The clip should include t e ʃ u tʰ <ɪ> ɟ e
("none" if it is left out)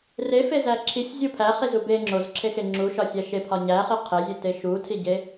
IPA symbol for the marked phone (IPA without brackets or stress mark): i